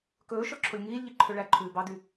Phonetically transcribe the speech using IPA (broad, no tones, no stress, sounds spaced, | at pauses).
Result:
k ɵː ʃ ɔ ǁʰ o lʲ ŋ iː lʲ ʎ i ǃʰ ø ɭ æ ǃʰ ʉː b ɑ d y